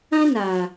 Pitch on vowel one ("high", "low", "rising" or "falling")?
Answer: high